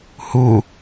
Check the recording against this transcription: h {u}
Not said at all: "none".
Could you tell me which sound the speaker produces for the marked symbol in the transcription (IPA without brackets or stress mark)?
u